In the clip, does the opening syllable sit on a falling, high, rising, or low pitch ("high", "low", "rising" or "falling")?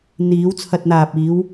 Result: rising